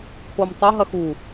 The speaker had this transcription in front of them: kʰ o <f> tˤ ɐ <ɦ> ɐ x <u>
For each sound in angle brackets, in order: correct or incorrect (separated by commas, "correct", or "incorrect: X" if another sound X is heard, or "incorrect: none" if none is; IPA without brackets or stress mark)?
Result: incorrect: m, correct, correct